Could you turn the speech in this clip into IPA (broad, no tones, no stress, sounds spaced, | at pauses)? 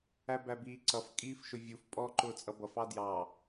æ b æ b iː ǀ ʌ f kʼ iː f ʃ ʊ vʲ u f pʼ ɔ ǃ ʊː t͡sʼ ʌ b ʌ f ɑ d j ɑ